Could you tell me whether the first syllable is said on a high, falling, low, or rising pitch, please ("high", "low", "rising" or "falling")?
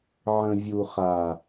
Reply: low